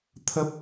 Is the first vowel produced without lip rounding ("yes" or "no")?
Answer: yes